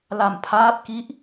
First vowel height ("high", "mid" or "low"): low